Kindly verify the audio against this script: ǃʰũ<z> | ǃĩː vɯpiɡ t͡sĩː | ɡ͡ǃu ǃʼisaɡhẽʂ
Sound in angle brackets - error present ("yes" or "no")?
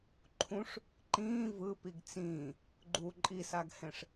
yes